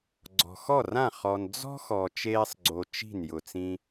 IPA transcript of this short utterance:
ɡ͡ǀ ɔ̤˨ x ɔ˦˨ r ã˦˨ χ ɔ˨ n d͡z ɔ̤˦ x ɔ˨ t͡ʃ eː˦ sˤ ɡ͡ǀ o˧ t͡ʃ i̤˦˨ n j ʊ˨ t͡s ĩ˧

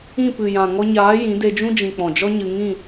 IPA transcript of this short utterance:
ĩ˦˨ p ɨ˨ j ã˨ ŋ ɔ˧ ɲ aː˨˦ j ĩ˨˦ d e˧ d͡ʒ ũ˦ d͡ʒ ĩ˨ k͡p ɔ̃˨ d͡ʒ ɔ˦ ɲ ɨ˧ ŋ ĩ˦˨

